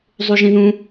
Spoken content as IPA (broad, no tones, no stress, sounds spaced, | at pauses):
zˤ u ʒ ĩ ð ũ